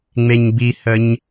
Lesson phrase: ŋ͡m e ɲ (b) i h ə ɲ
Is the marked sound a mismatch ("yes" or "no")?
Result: no